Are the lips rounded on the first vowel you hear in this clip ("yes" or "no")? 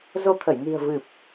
yes